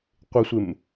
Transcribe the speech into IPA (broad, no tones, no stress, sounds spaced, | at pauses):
qʷ ɪ sʷ ɪ m